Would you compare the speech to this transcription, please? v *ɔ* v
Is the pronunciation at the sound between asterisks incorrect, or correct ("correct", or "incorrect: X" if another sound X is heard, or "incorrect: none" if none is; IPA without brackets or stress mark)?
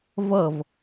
incorrect: ʌ